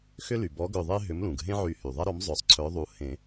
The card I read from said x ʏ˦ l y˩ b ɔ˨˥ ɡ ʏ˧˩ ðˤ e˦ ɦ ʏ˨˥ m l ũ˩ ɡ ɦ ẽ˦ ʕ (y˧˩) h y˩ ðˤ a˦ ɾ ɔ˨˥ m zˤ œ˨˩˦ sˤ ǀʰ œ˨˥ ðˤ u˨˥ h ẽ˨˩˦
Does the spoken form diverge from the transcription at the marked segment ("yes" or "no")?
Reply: yes